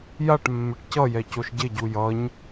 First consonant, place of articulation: palatal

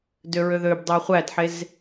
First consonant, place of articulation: alveolar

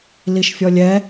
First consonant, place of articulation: alveolar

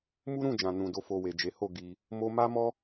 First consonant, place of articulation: labial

